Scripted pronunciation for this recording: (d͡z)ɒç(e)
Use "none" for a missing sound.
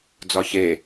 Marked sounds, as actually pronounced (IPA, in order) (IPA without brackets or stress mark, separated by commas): d͡z, e